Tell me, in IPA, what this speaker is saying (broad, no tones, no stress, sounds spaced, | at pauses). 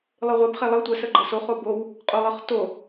lˠ ɯ ʁʷ e b χ e lˠ ɤ tʷ ə s ə ɡ͡ǃ ɤ s o χ o b o w | qʼ o lˠ ɤ χ t o